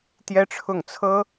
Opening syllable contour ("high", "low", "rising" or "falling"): high